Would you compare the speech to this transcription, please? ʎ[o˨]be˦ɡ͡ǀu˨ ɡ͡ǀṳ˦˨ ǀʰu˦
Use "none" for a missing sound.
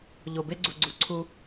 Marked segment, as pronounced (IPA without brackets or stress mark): o˨